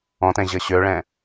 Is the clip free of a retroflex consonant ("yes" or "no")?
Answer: no